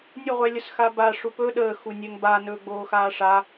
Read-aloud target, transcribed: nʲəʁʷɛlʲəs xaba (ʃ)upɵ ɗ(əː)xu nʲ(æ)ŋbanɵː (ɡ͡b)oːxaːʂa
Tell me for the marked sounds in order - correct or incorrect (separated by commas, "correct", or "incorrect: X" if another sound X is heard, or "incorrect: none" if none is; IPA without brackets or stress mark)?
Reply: incorrect: ʂ, correct, incorrect: ɛ, correct